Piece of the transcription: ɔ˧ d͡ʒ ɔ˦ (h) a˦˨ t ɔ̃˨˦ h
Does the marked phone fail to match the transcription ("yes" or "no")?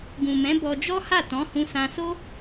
no